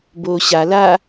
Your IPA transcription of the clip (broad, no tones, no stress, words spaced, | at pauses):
boːɕa la